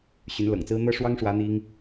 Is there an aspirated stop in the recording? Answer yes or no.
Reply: no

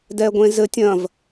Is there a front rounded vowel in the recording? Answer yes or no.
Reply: no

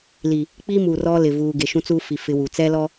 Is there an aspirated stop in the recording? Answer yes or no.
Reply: no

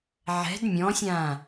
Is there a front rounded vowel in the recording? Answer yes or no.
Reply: no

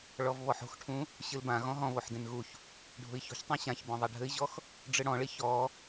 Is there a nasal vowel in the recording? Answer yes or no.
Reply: yes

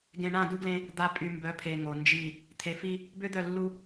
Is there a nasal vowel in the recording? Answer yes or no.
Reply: yes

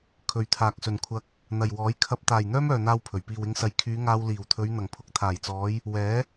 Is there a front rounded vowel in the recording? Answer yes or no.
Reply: yes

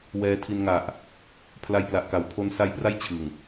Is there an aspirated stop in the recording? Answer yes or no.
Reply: yes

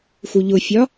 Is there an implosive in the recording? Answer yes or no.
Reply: no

